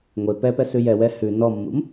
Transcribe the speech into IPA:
ŋʷ e p ɛ p ɛ s ʉ j ɛ w ɛ h ʉ n ɔ mː ṵ m

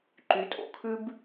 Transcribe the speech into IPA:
ǃ y˨˦ tʼ o̰˨ kʰ ʉ˦ b

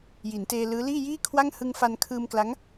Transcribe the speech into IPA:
j i˩˦ n t eː˧ l ɯː˦˥ l iː˥˩ j iː˥˩ kʰ w a˥˩ ŋ h ɯ˧ ŋ f a˧ n kʰ ɯː˧ m k l a˦˥ ŋ

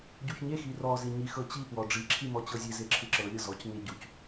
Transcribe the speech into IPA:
ɟ u ç ɲ e x i r ɔ z i ɲ i x ɤ t͡ɕ i p w ɔ ɖ͡ʐ i ǁʰ i m ɔ t͡ɕ ɤ zʲ e z e ǁʰ ɯ ǁ ɤ lʲ ɤ z ɔ c ɲ e ɟ u c

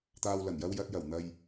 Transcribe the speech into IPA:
t̪ aː˨ w l ɐ˨˩ n j ɐ˧ w j ɐ˨ t̚ j ɐ˨˩ w n̪ ɐ˨ j

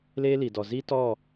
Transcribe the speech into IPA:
l eː˦ l i˨ d ɔ˨ z i˦ t ɔ˦˨

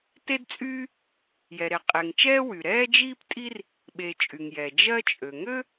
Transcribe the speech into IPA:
t e˥ d t͡sʼ yː˥ | j ɛ˩ ɾ e˩ qʼ e˩ ŋ t͡ʃ ɛː˥ w y˩ ɾ ɛː˥ d͡ʒ iː˥ p tʼ i˥ r | ɓ e˩ t͡ʃʼ y˩ ŋ j ɛ˩ d͡ʒ ɜ˥ t͡ʃʼ ø˩ ŋ ø˥

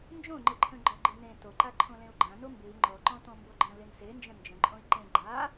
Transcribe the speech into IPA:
n d͡ʒ õ ŋ͡ǃ ɨ ǃʰ ə̃ ɡ͡ǃ ɔ ɡ͡ǃ ɨ n ẽ t o ǃ a ǃʰ õ l ẽ u̯ ɡ͡ǃ ã n o m b ɨ i̯ ŋ͡ǃ ɔ ǃ ɔ̃ t ɔ̃ m b o ɡ͡ǃ ə̃ l e n s e n d͡ʒ ə̃ n d͡ʒ ə̃ ǃʼ õ i̯ ǃ ẽ ɡ͡ǃ a

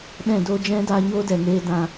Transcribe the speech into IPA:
ɗ ɛ̃˦˨ d oː˦ d͡ʒ ɛ̃˦ d a˧ ɲ oː˦ d ɛ˨ ŋ eː˦ d ã˧

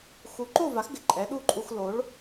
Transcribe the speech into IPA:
x u˩˥ ǃ o˥˩ v a˩˥ x ɡ ɪ˩ ǃʼ ɛ˩˥ ɗ u˥˩ ǃʼ u˧ x l o˩˥ ɭ

